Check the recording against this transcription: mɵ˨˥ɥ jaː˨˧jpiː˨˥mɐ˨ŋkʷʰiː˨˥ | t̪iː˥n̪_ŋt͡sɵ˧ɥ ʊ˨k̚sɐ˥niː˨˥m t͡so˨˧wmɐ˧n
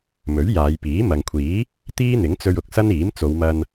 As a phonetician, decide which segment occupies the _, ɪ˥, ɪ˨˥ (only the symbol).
ɪ˨˥